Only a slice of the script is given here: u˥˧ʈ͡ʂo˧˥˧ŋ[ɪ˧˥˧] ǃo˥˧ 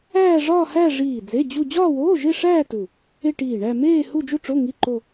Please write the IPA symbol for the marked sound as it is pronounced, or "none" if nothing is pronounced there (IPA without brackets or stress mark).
i˧˥˧